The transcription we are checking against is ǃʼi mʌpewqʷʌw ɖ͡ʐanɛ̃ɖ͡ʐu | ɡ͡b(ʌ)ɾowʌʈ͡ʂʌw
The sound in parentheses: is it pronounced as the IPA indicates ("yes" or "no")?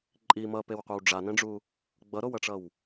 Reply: yes